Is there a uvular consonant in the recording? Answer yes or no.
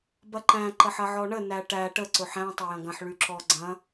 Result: no